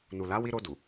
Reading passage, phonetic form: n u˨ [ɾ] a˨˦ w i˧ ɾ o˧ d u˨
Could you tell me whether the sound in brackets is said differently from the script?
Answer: yes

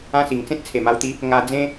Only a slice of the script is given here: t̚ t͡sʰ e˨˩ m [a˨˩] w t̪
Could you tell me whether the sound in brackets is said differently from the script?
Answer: yes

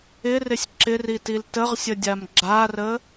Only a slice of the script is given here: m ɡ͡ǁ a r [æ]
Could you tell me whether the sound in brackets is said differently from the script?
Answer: yes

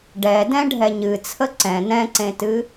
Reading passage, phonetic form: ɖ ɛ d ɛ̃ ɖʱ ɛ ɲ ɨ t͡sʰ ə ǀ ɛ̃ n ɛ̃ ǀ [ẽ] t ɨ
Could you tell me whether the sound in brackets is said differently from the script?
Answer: no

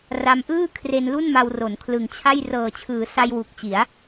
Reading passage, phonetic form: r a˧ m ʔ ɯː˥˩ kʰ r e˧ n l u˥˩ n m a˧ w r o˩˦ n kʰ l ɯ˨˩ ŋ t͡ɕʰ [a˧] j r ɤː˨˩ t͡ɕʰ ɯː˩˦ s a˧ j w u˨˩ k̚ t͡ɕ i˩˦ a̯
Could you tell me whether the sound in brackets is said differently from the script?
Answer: yes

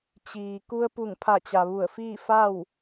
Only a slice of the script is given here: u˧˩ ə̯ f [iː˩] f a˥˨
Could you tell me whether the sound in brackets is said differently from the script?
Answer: yes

